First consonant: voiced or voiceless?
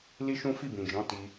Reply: voiced